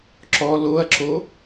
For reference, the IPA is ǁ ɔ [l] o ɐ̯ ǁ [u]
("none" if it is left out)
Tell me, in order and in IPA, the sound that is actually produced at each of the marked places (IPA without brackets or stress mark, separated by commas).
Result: l, o